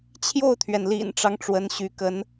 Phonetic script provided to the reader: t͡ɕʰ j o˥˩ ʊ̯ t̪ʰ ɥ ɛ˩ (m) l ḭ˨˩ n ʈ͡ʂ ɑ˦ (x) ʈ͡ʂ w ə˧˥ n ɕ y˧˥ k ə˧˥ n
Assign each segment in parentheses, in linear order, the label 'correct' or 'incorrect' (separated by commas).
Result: incorrect, incorrect